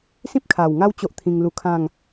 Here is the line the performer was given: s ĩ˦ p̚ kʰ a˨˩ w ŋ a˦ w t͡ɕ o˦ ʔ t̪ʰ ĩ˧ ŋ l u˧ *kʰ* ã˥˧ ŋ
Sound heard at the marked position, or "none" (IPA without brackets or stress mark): kʰ